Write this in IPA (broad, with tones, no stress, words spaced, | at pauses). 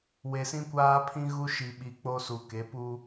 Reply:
we˨sĩ˦kʷaː˦ pʰĩ˦ ɣu˦ʃi˨ɓi˨ k͡po˦su˨ ke˨˦pu˦